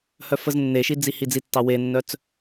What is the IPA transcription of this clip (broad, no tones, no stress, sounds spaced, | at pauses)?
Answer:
h œ f ə z nː e ʃ i d͡z i h i d͡z i tː ɑ w e nː œ t͡s